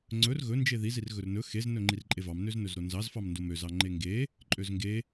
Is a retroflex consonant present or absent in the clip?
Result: absent